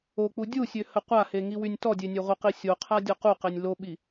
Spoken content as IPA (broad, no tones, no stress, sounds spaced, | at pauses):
o k͡p u dʲ u sʲ ø h ə qʷ a h e ŋ i w y nʲ t ɔ dʲ e nʲ ø ʁʷ ə q i sʲ o qʰ a dʲ ɔ q u q e nʲ l o ɓ i